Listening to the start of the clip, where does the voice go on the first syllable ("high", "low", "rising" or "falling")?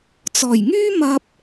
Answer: low